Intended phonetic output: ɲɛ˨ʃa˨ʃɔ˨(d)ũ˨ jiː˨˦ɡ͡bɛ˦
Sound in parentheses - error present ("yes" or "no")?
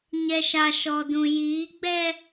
no